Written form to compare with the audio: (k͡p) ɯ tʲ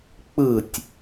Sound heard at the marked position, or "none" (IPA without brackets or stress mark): k͡p